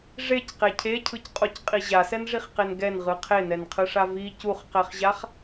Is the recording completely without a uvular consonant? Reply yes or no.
no